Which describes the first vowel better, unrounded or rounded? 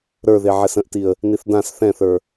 unrounded